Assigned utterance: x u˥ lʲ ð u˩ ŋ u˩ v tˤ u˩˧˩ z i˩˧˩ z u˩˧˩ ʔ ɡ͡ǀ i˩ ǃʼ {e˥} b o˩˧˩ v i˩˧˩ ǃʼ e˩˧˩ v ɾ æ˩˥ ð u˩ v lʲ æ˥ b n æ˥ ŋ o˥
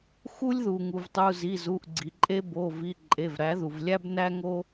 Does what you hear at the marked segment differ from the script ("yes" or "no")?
no